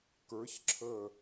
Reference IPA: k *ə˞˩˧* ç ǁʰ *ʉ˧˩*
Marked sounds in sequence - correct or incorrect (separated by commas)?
correct, incorrect